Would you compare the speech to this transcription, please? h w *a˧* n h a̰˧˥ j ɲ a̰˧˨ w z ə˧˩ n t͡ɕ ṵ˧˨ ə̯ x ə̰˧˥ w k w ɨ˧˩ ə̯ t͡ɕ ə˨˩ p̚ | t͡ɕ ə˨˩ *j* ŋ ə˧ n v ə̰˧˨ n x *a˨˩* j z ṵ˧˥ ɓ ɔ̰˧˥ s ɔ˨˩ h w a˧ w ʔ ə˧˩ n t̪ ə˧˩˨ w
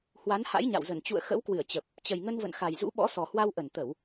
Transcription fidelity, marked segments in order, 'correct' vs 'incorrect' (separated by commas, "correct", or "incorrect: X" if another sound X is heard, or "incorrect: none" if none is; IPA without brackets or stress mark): incorrect: a˨˦, correct, correct